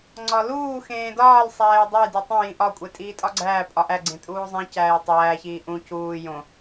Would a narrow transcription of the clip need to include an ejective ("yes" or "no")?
yes